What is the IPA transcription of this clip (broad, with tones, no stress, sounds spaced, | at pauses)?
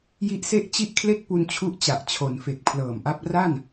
j i˦˥ ʔ s e˥˩ ʔ t͡ɕ i˥˩ ʔ kʰ l e˥˩ k̚ p u˧ n t͡ɕʰ u˦˥ ʔ t͡ɕ a˨˩ ʔ t͡ɕʰ o˩˦ n f e˨˩ k̚ pʰ l ɤː˨˩ m ʔ a˦˥ p̚ r a˥˩ n